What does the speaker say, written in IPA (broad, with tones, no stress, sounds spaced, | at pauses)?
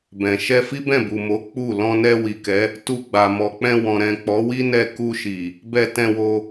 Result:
b ɛ̃˨ ʃ ɛ˧ f i˦ b ɛ̃˦˨ b u˨ m o˨˦ k͡p u˦˨ l ɔ̃˧ n ɛ˧ w i˨ k ɛ˨˦ | t u˧ ɡ͡b a˨ m ɔ˨ k͡p ɛ̃˧ w ɔ̃˨ ɾ ɛ̃˨ k͡p ɔ˨˦ w i˦ n ɛ˧ k u˧ ʃ i˨ | b ɛ˧ t ɛ̃˧ w o˧